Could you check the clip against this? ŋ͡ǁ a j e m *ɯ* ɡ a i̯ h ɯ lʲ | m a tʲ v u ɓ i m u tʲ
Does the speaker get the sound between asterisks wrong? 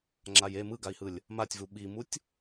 no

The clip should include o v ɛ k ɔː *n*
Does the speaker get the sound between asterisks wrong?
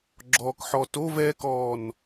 no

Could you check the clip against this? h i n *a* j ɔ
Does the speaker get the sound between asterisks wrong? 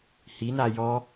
no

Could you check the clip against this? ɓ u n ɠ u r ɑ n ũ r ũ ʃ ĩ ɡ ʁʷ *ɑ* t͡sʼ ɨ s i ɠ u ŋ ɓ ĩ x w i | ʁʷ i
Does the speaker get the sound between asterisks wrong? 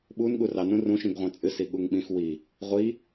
yes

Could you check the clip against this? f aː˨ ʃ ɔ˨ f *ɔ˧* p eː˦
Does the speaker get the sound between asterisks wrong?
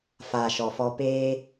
no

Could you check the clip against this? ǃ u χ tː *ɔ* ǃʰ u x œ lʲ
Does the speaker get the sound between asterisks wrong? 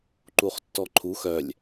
no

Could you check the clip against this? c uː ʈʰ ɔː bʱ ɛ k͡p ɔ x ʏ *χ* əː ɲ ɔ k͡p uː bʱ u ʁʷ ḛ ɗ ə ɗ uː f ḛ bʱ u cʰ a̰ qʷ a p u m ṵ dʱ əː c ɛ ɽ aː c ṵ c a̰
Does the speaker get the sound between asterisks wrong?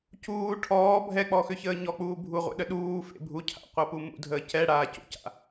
yes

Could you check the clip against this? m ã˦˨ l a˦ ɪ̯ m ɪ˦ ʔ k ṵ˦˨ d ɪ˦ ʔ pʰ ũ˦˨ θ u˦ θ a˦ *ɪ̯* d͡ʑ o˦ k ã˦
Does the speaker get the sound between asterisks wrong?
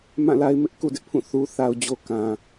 yes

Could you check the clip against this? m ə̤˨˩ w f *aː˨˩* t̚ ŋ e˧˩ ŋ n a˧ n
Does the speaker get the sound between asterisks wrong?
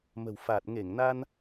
no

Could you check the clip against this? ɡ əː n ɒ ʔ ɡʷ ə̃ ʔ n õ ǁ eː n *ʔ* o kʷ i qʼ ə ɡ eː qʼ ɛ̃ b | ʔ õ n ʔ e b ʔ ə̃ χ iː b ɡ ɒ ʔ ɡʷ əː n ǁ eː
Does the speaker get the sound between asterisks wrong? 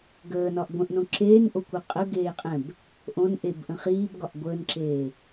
no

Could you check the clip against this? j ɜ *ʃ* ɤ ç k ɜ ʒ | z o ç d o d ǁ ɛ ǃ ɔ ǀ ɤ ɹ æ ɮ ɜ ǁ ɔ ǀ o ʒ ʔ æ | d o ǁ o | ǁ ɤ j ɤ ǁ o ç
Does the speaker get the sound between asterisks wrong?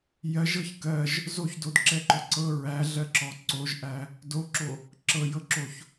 yes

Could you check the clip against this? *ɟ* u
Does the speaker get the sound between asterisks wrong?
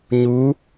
yes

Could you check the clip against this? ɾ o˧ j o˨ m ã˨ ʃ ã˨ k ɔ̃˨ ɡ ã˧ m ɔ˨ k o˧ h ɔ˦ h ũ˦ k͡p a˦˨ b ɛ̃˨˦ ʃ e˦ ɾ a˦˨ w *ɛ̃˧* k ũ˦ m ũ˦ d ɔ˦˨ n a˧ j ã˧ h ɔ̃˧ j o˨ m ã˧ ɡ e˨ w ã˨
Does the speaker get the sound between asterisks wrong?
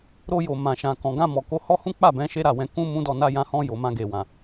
no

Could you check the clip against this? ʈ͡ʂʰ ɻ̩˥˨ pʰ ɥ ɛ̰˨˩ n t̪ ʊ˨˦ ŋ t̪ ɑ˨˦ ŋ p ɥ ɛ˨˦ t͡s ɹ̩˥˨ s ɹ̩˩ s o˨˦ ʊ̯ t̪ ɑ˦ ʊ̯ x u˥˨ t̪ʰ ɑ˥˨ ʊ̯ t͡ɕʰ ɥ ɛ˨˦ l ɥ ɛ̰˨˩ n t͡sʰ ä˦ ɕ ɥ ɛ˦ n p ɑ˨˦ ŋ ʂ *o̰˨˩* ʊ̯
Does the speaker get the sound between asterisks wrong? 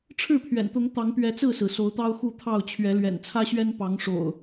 no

